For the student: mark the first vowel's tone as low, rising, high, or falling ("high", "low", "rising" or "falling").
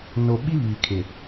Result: low